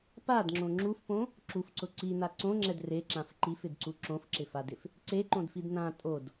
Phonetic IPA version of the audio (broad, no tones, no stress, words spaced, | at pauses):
padŋ͡ǁõ ŋ͡ǁufpõ | ǁufǀʊ ǀina ǀõŋ͡ǁɛd reǁãf ǃifɪdǀu ǁõfǁɪfadɪf | ǀeǃõdfid nã tʼod